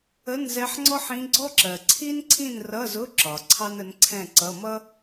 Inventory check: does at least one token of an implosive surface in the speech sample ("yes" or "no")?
no